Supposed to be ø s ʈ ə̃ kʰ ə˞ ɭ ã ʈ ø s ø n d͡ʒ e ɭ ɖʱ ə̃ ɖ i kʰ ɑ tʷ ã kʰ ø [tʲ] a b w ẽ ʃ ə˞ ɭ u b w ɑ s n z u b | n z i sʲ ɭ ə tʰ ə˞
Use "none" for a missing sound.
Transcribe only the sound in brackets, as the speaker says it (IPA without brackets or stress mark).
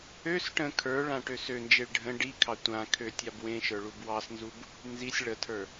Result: tʲ